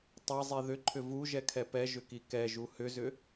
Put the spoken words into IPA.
tˤɛzˤi ðʏǃʰʏ vuʒɛkʰɛ pɛʒʏki kɛʒu hʏzʏ

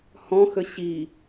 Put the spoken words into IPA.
hɔ̃xə ɕi

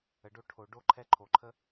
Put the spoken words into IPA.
ə˩ɖo˧ ʈʰo˩ ɖo˥ǃʰɛ˥ ǃʰo˩ǃʰə˥

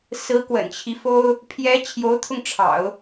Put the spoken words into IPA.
sɹ̩˧˥kwə̰˨˩nt͡ɕʰi˦fo˥ʊ̯ | pʰjɛ˧˥ t͡ɕʰjo˧˥ʊ̯t̪ʰʊ˧ŋʈ͡ʂʰɑ̰˨˩˦ʊ̯

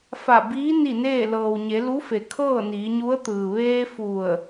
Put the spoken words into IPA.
fa˧˩ biː˧˥ ni˥˨neː˥˨ lɤː˩wɲe˩˧lu˧˥fe˩ kʰɤː˥˨niː˩˧ɲu˧˥ə̯t̪ɯː˩ ʋeː˧ fu˧˩ə̯

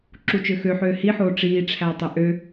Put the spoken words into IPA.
ǁut͡ʃøxøħøː hiħoː ʈ͡ʂiːʈ͡ʂʰæ tˤeʔø

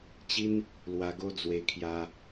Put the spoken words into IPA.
t͡ɕi˦n | lwa˧ɡo˦d͡zwe˧ kʰja˧

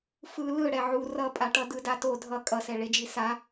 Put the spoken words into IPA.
fɯ lɯɽɛ ʕu rʌpʼaʈʌ dɯdato dʱʌ kʼʌsɛ ɭed͡ʒisa

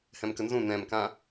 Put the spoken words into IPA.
hɛ̃mkənzũ nɛ̃mkã

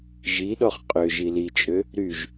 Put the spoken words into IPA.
ʒiɗɔχ qʼø ʒilit͡ʃʼø | ɾyʒ

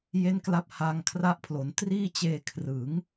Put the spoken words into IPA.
je˥˩nkla˥˩p̚ ha˧ŋkʰra˦˥ʔpʰlo˩˦n triː˥˩t͡ɕeː˧ kʰrɯ˩˦ŋ

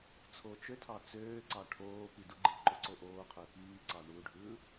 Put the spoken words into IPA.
t͡sʰot͡ʃøtʰɑ t͡søːǀɑ ʈʰoː piduɡ͡ǃiǃo ǀoʔoːqʰø piːǀɑ ɳuɖʱɯː

